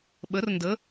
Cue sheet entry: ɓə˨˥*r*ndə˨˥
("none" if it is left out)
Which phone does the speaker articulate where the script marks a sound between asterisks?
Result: r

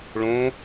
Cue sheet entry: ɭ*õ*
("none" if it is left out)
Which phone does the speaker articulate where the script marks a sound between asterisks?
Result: õ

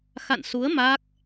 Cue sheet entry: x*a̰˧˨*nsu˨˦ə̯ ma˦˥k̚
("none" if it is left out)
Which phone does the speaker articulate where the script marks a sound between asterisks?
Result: a̰˧˨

